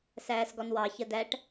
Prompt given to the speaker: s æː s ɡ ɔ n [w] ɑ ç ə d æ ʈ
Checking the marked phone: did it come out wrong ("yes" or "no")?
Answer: no